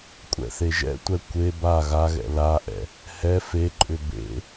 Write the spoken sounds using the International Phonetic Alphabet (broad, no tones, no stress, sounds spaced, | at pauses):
kʷʼ ɛ̰ θ e ʒ ɛ̰ tʷ ɛ kʷ e b a ɣ a ɣ ɛ̰ l a ʔ ɛ̰ | h ɛ f e ǃʼ ʏ b ḛ